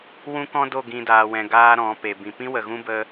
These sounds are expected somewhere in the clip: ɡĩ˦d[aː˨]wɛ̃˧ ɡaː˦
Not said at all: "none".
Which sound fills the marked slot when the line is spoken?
aː˧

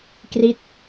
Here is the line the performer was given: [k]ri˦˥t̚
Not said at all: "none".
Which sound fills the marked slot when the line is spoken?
k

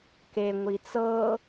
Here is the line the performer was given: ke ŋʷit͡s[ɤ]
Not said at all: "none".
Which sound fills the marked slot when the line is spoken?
ɤ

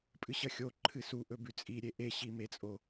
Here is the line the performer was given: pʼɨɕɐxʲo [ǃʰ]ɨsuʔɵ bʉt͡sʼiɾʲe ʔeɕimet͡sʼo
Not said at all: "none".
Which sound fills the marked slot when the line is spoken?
ǃʰ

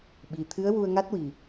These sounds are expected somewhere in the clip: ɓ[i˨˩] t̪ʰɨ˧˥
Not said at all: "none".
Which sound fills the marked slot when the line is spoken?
i˨˩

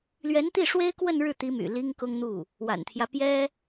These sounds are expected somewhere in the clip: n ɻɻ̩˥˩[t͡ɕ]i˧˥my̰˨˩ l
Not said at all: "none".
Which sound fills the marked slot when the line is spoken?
t̪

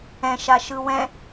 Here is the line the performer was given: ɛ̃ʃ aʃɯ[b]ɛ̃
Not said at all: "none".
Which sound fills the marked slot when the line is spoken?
w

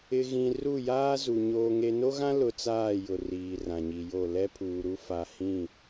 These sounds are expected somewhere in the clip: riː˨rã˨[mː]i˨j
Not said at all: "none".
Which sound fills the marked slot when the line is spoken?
ɲ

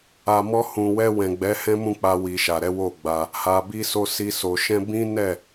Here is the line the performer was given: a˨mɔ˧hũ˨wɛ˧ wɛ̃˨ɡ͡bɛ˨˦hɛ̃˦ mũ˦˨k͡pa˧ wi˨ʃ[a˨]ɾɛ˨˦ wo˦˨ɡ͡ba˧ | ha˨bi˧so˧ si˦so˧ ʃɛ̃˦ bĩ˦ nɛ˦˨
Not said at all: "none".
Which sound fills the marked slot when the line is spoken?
a˨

